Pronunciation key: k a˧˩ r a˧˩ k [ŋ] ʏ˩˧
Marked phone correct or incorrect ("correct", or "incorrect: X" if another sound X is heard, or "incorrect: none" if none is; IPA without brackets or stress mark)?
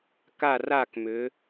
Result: incorrect: m